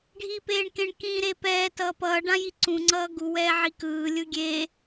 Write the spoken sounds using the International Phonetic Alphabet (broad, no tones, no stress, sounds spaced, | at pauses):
ɖʱ iː p eː ɳ k ẽ ɳ k ĩ ɾ e p ɛː t ʌː p ʌː ɖ ã j i ǀ ũ ŋ͡ǀ ʌː ɡ u w ɛː ʕ i k ɯː lʲ ɯ ɡʲ eː